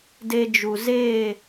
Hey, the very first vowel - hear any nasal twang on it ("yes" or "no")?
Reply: no